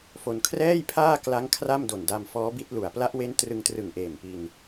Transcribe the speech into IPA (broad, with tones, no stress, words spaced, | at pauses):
fo˧n kʰrɛː˥˩jpʰaː˥˩kla˦˥ŋ kʰra˥˩mdo˨˩nda˧m fɔː˦˥bi˦˥t̚lu˨˩a̯ pla˦˥ʔwe˦˥n trɯ˧ŋtrɯ˨˩ŋʔeː˨˩mpi˧n